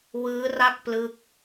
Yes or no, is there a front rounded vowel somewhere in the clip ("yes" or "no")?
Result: no